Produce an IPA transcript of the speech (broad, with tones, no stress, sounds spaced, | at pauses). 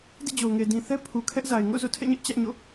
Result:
d ḭ˦˨ d͡ʑ o˨ ʊ̯ ŋ e˨ d ĩ˨ θ ɛ˦ pʰ u˨ kʰ ɛ˦ ʔ z a˨ ɪ̯ ŋ o̰˦˨ z o̰˦˨ tʰ ɛ̰˦˨ ɲ ɛ˦ ʔ t͡ɕ ä˦ ʔ ɲ o̰˦˨